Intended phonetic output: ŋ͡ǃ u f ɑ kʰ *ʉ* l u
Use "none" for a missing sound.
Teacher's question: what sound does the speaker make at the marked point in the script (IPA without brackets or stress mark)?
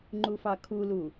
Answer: u